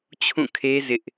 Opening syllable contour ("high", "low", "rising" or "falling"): falling